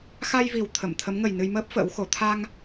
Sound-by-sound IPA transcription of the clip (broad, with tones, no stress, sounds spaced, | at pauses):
x a˧ j v i˨˩ w t̪ʰ ə˧˩ m t̪ʰ ə˨˦ m ŋ ə˨˩ j n ɨ˧ j m əː˦˥ p̚ f ə̰ː˧˥ w x o˨˦ t̪ʰ a˧ ŋ